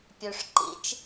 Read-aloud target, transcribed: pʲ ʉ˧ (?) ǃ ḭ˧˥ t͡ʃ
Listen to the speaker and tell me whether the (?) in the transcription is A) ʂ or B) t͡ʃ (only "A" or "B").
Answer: A